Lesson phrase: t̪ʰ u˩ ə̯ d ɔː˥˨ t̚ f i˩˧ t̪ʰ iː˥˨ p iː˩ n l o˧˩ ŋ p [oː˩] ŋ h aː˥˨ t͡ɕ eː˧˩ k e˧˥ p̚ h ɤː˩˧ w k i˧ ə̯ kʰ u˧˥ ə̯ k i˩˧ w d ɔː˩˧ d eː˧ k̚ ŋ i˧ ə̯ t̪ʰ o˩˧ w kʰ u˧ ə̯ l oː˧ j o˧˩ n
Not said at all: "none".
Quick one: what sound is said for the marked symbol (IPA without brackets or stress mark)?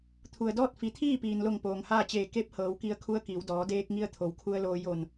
oː˩